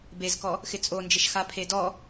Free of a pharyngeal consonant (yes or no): yes